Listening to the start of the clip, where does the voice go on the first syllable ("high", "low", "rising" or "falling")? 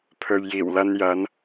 low